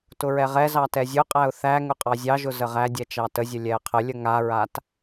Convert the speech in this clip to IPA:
t ʊ ɹ ɛ ʁ ɛ z ɑ t ɛ zʲ ʊ qʼ æ ʊ̯ θ æ ŋ ʊ qʼ ɑ zʲ ɑ ʒ ʊ z ə ʁ æ dʲ ɛ t͡ʃ ɑ t ə zʲ ə lʲ ɛ ə̯ qʰ ə lʲ ə ŋ a ɹ a t

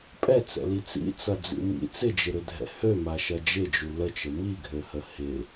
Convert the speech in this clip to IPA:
pʼ ɛ t͡s ɛ̰ l i t͡s ḭ t͡s ɐ d͡z ḭ m ḭ t͡s ɪ d͡ʒ ɪ ɾ ʏ dʱ ɛ̰ h ø m a ʃ ɐ d͡ʒ ɪ d͡ʒ u l ə t͡ʃ ə m i ɡʱ ø h ə h ɪ

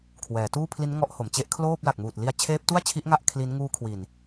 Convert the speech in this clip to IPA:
kʰ w ɛː˩˦ t uː˥˩ pʰ l i˦˥ n ŋ ɔ˦˥ ʔ h o˩˦ m t͡ɕ e˦˥ ʔ kʰ l oː˥˩ p̚ l a˨˩ k̚ m uː˨˩ t̚ l i˧ a̯ t͡ɕʰ eː˦˥ p̚ t u˥˩ a̯ t͡ɕʰ i˦˥ ʔ ŋ a˥˩ ʔ kʰ l i˦˥ n ŋ uː˦˥ kʰ w i˨˩ n

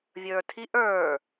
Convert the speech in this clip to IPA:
vʲ ə˞ tʰ i ʔ ə˞

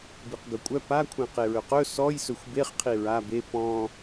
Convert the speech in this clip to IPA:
b i q ɡ ɵ kʷʼ œ p a kʷʰ ẽ q e ɹ ɵ q ɵ s ɔ j s ɵ xʷ b e χ qʰ i ɹ a b e p ɔ̃

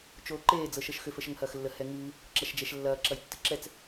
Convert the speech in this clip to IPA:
t͡ʃ oː ǃ eː d͡z ɤ ʃ ɤ ʃ x ʏ f ə ʃ ə ŋ h ɐː x lː ə h ɛ ŋ ɨː | ǁ ɐ ʃ d͡ʒ ɛ ʃ lː ɐː ǁ ɐ j tː ɨ ǁ ɛ t͡s

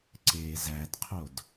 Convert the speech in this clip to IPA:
ǀ eː z æ d qʰ o d

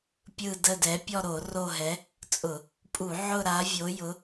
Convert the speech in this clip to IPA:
pʲ ɯ˦˨ d ə˦˨ d ɛ˨˥ pʲ ɔ˦˨ ɾ o˧˩˧ r o˦˨ ɦ ɛ˨˥ | t͡sʼ ʊ˧˩˧ | pʼ u˧˩˧ ʕ ʊ˦˨ ɾ a˨˥ vʲ o˨˥ j ʊ˨˥

